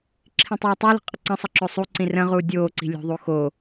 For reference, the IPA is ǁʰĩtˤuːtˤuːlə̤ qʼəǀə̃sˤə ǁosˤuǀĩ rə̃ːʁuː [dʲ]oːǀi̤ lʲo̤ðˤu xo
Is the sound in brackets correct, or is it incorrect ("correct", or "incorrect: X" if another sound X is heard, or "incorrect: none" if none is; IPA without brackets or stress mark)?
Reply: correct